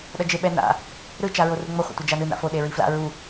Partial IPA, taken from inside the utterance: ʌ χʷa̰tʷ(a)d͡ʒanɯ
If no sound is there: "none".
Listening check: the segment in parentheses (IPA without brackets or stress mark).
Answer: ʌ